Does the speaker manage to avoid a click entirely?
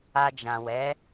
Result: yes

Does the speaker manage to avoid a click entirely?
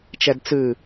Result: yes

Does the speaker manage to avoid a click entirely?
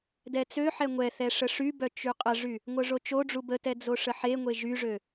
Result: yes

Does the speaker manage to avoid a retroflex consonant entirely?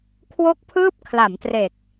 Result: yes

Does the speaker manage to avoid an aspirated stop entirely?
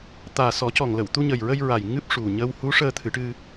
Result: no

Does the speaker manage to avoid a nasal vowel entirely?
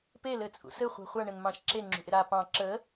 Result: no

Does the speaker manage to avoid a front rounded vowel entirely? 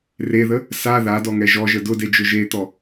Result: yes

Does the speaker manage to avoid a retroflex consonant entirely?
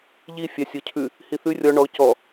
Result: no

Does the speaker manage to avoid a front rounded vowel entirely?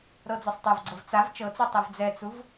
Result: yes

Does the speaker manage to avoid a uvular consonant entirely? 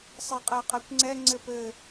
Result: no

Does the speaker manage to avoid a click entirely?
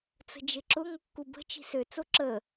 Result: no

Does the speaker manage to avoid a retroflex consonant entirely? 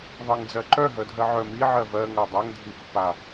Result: yes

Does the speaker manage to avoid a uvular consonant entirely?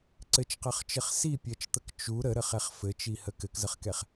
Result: no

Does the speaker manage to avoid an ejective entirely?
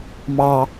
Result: yes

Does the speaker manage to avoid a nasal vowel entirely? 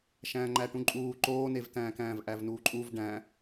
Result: no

